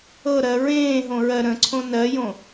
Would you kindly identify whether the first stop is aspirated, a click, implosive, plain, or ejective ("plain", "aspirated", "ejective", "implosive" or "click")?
click